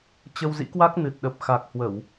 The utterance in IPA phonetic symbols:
t͡ɕ ə˧ w z ḭ˧˥ k w a˦˥ k̚ n ɨ˨˩ t̚ ɗ ə˨˩ p̚ x a˨˩ k̚ h w ə˧˩˨ w

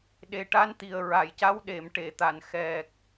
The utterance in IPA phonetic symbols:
ɗ e˨˩ ʈ a˧˥ n t̪ i˨˩ ə̯ ɹ a˨˩˨ j c a˧˥ w ɗ e˨˩˨ m ʈ e˨˩˨ t̪ a˨˩˨ n x ɛ˨˩ k̚

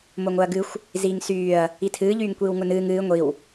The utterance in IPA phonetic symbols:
m o ŋ o ɐ̯ ɡ ɨ xʷ | z iː ŋ s yː ɐ̯ | i tʰ ɨː ʎ yː ŋ kʷ iː w ŋ ʊ n ɨː ŋ ɨː ŋʷ i w

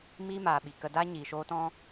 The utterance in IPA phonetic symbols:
m iː˦ m aː˨ ɓ i˨ k ə˧ d a˦ ɲ iː˨ ʃ oː˧ t ɔ̃˧

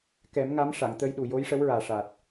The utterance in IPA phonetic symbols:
k ɛ˨˩˦ m ŋ a˧˥ m ʂ a˨˩˨ ŋ t̪ ə˧ j ɗ u˨˩ j o˧˥ j ʂ ə˧˥ w ɹ aː˨˩ ʂ aː˨˩ t̚

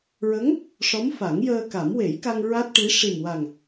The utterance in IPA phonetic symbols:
ɹ ə˧˥ ŋ | ʂ ɔ˧˥ m f a˨˩˦ ŋ j əː˧ k a˨˩˦ m w e˨˩˦ j k a˧ ŋ ɹ a˦˥ t̚ ʈ i˧˥ ʂ i˨˩ m w a˨˩ ŋ

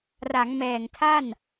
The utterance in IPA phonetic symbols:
r a˩˦ ŋ m ɛː˨˩ ŋ tʰ a˥˩ n

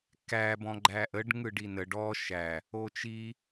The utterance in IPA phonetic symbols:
k æ b ɔ̃ ɡ͡ǃ æ ʔ ə ɖ ŋ ɯ ɖ i n ə ɖ ɔ ʃ æ | o t͡ʃ i

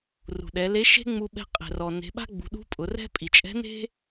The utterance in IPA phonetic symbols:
r ṳ˩ ɗ ɛ˩˧ l e˧˥ ʃ e̤˥ ŋ͡m u˧ ɓ ɛ̤˧ qʼ ɛ̤˩ r ɔ˩ n e̤˩˧ ɓ a̤˥ ɡ͡b ṳ˩˧ ɗ ṳ˧˥ pʼ ʊ˩˧ r ɛ̤˥ pʼ i˩ t͡ʃʼ ɛ̤˧˥ n e̤˥

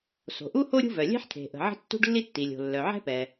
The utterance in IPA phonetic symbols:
s o̤˩ ʔ u˥ h o˥ ɾʲ ṳ˥ v œ˩ lʲ ɛ̤˥ ħ t̪ʰ e̤˩ ʔ ə̤˩ ʕ ə̤˥ tː ṳ˥ ɖ lː i˥ tː i˩ lʲ o̤˩ lː œ˩ ʕ ɛ̤˥ p ɛ˩

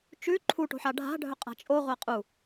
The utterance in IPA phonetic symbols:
t͡ʃ ʉ ǃʰ u ʈ o̤ ħ a ɖʱ a̤ ɖʱ ɵ qʼ a̤ t͡ʃʼ o ʁʷ a qʼ u

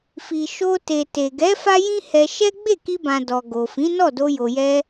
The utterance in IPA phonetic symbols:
f i˨ ʃ o˧ t e˨ t e˨ ɡ ɛ˨˦ f a˦ j ĩ˦ h ɛ˧ ʃ ɛ˦ ɡ͡b e˦˨ k i˧ b ã˨ d ɔ˨ ɡ o˨ f ĩ˨˦ n ɔ˦˨ d o˧ j o˨ j ɛ˧

